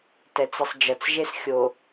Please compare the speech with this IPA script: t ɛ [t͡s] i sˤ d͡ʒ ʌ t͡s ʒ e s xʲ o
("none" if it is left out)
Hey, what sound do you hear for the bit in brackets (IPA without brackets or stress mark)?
t͡s